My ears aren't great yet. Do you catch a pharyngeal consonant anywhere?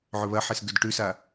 yes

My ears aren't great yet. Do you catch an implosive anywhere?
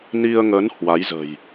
no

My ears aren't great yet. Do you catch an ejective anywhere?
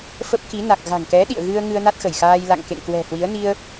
no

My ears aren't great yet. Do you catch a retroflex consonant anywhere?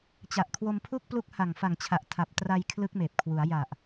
no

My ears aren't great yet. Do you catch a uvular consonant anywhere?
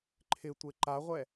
yes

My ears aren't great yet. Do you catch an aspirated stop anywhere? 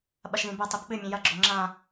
no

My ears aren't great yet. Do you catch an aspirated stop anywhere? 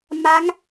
no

